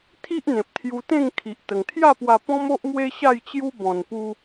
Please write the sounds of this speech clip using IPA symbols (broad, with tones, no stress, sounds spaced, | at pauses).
t̪ʰ i˦ ʔ n̪ ẽ˨ p̚ t̪ʰ j u˧ t̪ ẽ˥˧ ŋ kʰ i˨ ʔ t̪ ə˨˩ ŋ t̪ʰ j a˥˧ p w a˧ p ɔ̃˦ m o˦ ʔ m w e˦ ɕ a˥˧ j t͡ɕ j u˦ b ɔ̃˧ n p u˦